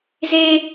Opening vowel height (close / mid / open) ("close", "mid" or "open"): mid